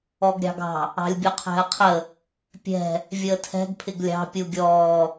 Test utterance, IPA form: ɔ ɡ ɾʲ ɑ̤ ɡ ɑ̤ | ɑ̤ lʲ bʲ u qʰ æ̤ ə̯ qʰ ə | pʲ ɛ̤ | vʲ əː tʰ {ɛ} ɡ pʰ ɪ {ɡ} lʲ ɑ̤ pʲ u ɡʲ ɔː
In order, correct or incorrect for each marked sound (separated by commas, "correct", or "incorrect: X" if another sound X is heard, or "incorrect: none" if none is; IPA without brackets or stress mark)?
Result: incorrect: ɛ̤, correct